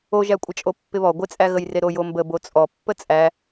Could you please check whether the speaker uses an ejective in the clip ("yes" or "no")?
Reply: yes